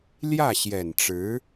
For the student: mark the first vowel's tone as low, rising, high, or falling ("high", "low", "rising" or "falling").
falling